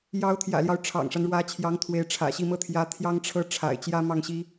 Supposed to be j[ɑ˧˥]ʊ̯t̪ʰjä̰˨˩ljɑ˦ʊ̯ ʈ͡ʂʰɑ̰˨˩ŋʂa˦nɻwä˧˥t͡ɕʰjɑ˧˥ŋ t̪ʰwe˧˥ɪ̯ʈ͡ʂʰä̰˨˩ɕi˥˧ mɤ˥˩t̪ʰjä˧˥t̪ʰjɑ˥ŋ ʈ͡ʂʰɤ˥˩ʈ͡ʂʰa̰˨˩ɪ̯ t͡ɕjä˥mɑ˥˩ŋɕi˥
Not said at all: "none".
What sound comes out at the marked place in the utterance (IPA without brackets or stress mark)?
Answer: ɑ˧˥